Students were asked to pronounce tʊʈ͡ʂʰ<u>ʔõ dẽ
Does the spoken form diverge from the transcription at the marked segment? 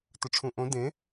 yes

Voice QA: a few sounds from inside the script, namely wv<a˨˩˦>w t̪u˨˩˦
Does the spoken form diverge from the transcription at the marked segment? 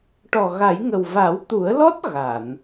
no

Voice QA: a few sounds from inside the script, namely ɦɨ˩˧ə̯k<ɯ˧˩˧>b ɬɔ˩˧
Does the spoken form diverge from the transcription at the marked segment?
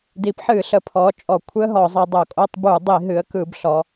no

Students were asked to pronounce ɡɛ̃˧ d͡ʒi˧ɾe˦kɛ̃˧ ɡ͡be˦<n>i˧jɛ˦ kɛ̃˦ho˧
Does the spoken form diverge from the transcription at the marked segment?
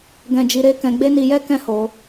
no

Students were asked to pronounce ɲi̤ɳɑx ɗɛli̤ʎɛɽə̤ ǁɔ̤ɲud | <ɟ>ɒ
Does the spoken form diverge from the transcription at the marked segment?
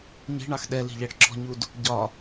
no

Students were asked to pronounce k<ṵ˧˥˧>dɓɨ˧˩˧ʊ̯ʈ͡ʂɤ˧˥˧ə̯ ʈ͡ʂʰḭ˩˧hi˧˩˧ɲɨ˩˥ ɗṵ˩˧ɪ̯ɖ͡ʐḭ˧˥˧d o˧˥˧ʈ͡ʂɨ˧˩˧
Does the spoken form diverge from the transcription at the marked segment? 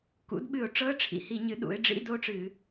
yes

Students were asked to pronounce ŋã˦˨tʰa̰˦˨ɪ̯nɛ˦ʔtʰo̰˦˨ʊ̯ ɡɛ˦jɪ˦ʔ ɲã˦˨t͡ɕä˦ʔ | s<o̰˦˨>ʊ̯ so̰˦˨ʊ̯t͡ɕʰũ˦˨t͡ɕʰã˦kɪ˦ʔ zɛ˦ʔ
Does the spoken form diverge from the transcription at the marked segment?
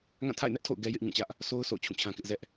yes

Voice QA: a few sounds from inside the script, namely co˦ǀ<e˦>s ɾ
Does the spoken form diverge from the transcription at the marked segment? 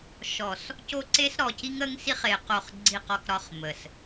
no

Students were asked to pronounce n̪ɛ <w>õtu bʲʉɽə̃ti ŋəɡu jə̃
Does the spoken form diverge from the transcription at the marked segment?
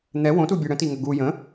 no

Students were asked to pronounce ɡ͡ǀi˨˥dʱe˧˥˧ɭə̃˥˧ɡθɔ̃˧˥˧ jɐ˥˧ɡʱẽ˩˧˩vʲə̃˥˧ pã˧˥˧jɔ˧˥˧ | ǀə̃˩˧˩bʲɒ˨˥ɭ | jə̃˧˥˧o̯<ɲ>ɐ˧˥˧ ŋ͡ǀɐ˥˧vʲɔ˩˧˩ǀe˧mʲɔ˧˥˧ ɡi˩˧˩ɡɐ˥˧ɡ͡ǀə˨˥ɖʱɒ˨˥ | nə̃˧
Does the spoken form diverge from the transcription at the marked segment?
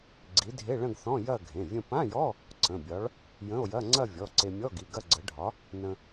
yes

